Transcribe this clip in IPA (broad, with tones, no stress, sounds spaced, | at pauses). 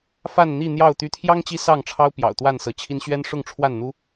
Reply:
f a˥˨ n n̪ i˥˨ n̪ j ɑ˥˨ ʊ̯ t̪ y˨˦ t̪ʰ j ɑ˦ ŋ t͡ɕ i˦ s ɑ˥˨ ŋ ʈ͡ʂʰ ɑ˦ ʊ̯ p j ɑ̰˨˩ ʊ̯ t̪ w a˥˨ n s ɤ˨˦ t͡ɕʰ i˦ n ɕ ɥ ɛ˦ n ʂ ʊ˥˨ ŋ ʈ͡ʂʰ w a˥˨ n n̪ u˦